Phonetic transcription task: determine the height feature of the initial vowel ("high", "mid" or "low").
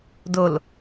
mid